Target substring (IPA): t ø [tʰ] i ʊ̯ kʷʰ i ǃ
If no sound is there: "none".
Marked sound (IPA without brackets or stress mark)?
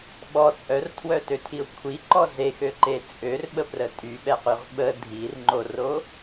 tʰ